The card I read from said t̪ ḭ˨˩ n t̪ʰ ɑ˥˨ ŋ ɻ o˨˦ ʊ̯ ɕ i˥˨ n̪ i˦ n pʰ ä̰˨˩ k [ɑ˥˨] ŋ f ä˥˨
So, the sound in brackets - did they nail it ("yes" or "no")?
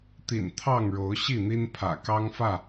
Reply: no